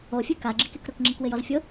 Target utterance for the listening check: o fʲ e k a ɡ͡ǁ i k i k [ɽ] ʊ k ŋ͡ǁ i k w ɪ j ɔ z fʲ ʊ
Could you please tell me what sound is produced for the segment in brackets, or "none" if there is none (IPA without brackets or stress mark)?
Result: ɾ